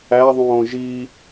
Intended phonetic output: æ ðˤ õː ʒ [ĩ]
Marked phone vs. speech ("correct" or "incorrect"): incorrect